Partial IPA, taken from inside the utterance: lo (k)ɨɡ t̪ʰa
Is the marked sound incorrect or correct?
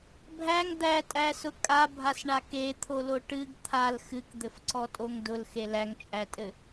incorrect: ʈ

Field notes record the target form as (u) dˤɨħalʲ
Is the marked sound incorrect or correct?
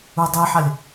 correct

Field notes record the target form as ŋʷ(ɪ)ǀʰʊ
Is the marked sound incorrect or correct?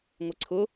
correct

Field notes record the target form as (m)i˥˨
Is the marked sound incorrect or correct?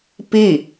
incorrect: p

